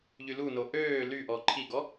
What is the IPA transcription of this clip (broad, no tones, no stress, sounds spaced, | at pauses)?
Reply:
ʎ y l u n o ʔ øː l y ʔ ɔ ǃʰ i ɡ ɔ